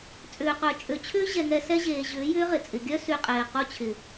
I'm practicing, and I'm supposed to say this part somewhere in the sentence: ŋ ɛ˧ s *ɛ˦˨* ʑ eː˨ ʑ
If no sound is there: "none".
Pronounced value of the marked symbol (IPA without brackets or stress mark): ɛ˦